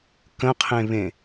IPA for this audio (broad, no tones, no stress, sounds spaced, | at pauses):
k ə̃ qʰ ẽ β ẽ